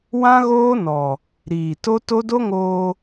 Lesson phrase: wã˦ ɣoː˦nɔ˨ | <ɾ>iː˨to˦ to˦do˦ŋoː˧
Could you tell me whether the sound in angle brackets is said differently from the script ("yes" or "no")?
no